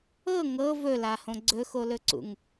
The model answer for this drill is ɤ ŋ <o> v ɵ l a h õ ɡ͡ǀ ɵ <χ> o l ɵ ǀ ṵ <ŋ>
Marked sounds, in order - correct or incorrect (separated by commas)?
incorrect, incorrect, correct